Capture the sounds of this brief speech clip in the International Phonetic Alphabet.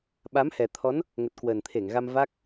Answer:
ɓa˨˦mhɛ˨˩t̪ʰɔ˨˦n | ŋə˨˩t̚kwəː˨˩nt̪ʰe˧˩ŋɣa˧m va˦˥k̚

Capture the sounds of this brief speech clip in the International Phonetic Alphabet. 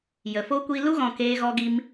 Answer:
jə˨fo˦ kʷiː˧lu˦ɣɔ̃˨ keː˦ɣɔ˦ɡi˦m

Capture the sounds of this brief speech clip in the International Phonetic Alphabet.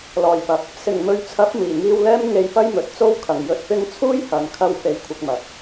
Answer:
lɔː˨˩jpɐ˨p̚ | sɪ˨˩ŋmɵ˨˧ɥt͡sʰɐ˨˥p̚ miː˨˩ŋiː˧wlɛː˥m ŋe˧jpɐ˥j mɵ˨t̚t͡so˥w kʰɐ˨˩ŋjɵ˧t̚pɪ˥ŋ t͡sʰuː˥jhɐ˨n kʰɐ˧w fe˧jkʷʰɪ˧k̚mɐ˨˥k̚

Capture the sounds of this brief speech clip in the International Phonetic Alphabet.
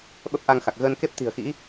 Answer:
ɓə˦˥p̚ʔa˧ŋxa˨˩k̚ ɣəː˧nke˦˥p̚t̪i̤˨˩ə̯xḭ˧˥

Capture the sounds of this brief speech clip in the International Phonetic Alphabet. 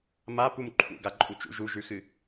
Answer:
mapum ǃʰṵɡaǃʼu t͡ʃṵ ʒuʒʉxɨ

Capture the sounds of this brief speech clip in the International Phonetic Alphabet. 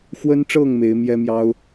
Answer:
xwə˦nʈ͡ʂɤ˥˨ŋ me˨˦ɪ̯mjɛ˦mjɑ˦ʊ̯

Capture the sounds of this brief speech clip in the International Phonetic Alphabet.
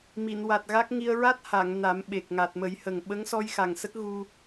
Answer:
mi˨˩˨nwa˨˩t̚ɣa˦˥k̚ŋi˧ə̯ ɹa˦˥t̚ha˨˩˨ŋ na˨˩˦mɓe˨˩k̚ŋa˨˩t̚ mə˨˩˦jhə˨˩ŋ ɓə˧˥ŋ sɔ˧j xa˨˩ŋsə˦˥k̚ ɣu˧

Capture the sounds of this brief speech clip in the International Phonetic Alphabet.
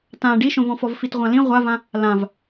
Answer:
tã ɖiʃõvɔ̃fɔv fitʁʷãlĩ ʁʷavã | lãv

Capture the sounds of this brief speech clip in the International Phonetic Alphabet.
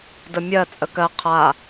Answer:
dəmʲɜ t͡sʼəkɜ qʰa

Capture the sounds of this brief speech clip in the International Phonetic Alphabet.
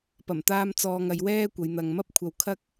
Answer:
pɐ˨˩mt̪aː˧m t͡sɔː˧ŋɐ˨˧jwɛː˥kʷɐ˨˧j n̪ɐ˨ŋmɐ˥p̚kʷʰɐ˧w kʰɐ˥k̚

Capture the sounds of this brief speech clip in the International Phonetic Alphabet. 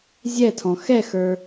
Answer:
zʲɛtʰɔ̃ xɛxə˞

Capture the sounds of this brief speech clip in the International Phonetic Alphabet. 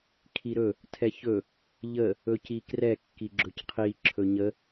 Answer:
kʰiɾɵ | tʰɛçɵ | ʎə | ɵcikrɛkːi ɡ͡ǁɵcqʰi ǁʰɵɲə

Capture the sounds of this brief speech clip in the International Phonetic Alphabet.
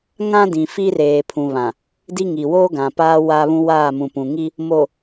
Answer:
ŋã˦dĩ˨ fi˦reː˨ pʰũ˨βã˨ | di˦ŋi˨ woː˦ɡã˨paː˦ wa˦βũ˦waː˦˨ mũ˨pũ˨ŋi˦ | mo˨

